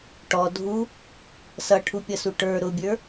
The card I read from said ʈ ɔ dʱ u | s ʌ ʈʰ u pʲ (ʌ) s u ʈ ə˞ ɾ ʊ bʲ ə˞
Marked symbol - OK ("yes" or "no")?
yes